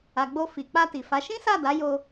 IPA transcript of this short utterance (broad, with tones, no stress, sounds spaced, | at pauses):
a˨ ɡ͡b o˧ f i˨ k͡p a˧ t i˨ f a˨˦ ʃ ĩ˦ s a˦˨ d a˨˦ j o˧